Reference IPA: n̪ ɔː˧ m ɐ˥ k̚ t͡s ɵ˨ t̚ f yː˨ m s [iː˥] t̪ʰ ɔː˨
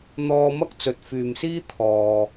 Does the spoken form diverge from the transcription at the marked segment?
no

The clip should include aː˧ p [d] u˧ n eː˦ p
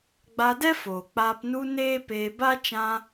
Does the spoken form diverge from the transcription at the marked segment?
yes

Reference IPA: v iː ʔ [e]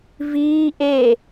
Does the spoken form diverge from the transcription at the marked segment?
no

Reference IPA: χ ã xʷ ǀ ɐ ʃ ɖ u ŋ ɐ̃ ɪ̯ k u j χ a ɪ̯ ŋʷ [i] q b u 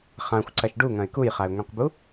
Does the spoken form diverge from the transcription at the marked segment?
yes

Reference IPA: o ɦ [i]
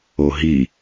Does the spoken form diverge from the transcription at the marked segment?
no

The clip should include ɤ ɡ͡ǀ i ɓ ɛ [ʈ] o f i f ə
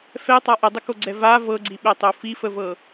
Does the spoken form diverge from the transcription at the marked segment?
yes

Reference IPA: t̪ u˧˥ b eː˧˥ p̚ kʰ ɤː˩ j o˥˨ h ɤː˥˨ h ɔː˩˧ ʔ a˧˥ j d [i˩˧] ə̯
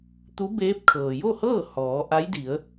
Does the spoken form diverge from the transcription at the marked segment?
no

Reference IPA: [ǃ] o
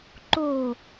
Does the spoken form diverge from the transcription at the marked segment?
no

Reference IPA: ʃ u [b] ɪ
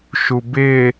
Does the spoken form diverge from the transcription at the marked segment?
no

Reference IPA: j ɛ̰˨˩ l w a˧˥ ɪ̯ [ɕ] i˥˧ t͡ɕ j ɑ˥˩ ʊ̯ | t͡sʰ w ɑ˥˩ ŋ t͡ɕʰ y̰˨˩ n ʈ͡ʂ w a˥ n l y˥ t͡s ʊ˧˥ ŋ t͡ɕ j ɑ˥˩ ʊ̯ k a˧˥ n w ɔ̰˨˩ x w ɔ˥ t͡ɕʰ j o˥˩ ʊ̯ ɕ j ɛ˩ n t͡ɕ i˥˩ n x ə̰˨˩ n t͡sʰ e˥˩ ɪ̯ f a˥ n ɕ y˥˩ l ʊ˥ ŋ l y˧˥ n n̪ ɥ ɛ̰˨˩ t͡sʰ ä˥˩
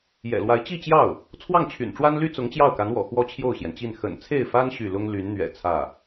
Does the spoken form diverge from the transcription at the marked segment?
yes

